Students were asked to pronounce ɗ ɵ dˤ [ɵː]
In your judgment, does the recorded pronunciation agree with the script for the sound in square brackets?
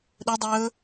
yes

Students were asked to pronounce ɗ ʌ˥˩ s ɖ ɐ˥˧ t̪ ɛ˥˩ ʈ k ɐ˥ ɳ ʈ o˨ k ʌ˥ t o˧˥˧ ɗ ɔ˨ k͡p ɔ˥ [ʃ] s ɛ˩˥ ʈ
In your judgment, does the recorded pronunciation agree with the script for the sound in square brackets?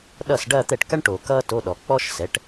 yes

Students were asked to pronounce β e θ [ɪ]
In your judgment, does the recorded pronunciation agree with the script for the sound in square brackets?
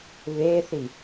no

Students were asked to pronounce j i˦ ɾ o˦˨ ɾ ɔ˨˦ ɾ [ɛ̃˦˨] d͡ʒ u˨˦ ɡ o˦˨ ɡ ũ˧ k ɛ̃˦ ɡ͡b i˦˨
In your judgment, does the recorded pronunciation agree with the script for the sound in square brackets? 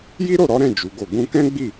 yes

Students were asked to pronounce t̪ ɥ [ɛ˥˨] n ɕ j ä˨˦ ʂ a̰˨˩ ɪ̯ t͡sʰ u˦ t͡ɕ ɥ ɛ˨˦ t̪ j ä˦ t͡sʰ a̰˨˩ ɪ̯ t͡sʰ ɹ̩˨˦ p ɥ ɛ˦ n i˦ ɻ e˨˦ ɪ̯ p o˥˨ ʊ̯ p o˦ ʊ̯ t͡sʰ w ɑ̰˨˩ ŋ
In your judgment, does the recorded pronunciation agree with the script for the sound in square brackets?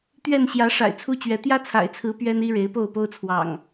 yes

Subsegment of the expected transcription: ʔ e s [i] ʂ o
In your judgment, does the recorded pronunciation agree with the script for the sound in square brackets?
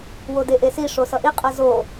yes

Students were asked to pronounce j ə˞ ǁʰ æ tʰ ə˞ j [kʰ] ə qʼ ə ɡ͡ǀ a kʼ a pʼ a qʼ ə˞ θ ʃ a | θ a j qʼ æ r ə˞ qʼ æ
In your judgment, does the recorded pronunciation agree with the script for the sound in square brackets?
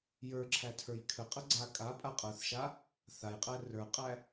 yes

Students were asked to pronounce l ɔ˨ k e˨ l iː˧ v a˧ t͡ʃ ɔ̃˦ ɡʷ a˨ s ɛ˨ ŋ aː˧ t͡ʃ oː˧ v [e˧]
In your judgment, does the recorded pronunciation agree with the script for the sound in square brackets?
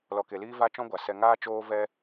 no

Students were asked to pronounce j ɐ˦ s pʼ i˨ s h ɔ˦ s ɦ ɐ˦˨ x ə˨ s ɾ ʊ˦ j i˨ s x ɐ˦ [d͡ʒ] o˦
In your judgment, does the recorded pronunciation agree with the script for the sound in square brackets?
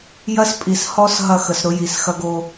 no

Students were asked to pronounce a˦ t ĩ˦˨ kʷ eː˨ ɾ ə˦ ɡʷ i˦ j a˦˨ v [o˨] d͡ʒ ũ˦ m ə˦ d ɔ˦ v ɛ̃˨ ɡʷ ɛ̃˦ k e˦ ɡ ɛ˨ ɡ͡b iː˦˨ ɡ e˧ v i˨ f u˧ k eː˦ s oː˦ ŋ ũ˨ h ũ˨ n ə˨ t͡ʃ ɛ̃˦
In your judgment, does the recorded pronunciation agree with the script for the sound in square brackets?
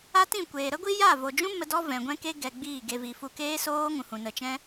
yes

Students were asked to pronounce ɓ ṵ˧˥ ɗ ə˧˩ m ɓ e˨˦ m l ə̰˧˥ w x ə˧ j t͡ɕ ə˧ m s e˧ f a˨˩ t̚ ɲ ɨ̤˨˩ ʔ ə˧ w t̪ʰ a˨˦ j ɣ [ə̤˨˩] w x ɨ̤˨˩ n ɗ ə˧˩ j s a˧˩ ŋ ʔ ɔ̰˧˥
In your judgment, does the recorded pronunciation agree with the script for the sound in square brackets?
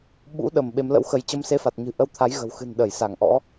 yes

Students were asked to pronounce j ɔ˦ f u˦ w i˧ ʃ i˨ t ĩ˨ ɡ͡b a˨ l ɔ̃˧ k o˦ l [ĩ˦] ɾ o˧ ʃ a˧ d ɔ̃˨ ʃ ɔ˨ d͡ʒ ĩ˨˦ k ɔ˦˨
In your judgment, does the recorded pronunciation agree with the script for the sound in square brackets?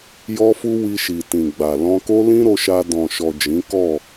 yes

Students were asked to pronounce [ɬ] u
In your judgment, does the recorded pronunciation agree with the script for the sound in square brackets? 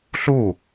yes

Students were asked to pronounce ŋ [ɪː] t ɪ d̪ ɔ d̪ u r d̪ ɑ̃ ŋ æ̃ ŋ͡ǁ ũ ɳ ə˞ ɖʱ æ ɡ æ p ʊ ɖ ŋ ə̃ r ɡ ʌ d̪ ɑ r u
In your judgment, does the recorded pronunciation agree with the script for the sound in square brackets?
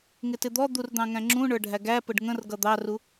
no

